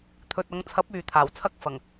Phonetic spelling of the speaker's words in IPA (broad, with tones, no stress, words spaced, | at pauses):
t̪ʰɵ˨t̚ɐ˨˧ŋt͡sʰɐ˨˥p̚ yː˨t̪ʰaː˨˩wt͡sʰɐ˥k̚ fɐ˨˩ŋ